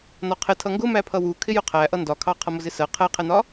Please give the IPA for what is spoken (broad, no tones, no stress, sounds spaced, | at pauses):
n ɒ qʰ ɪ tʰ ʌ ŋ ɡ ʊ m æ pʰ ʌ w u kʰ ɪ j ʊ qʰ æ ʔ ʌ n d ɒ kʰ ɑ qʰ ʌ m ʊ z ɪ s ɜ qʰ ɛ qʰ ɛ n ɒ